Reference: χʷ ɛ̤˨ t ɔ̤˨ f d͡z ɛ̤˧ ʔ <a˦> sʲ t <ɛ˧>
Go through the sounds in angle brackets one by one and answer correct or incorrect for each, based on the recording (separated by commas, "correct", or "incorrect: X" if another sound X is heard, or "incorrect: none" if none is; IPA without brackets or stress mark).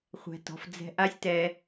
correct, correct